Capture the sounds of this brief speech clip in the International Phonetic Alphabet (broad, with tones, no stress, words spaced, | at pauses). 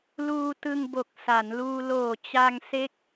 luː˧tɯ˧ŋbo˨˩k̚ sa˩˦nluː˧ loː˨˩ t͡ɕa˧ŋse˦˥k̚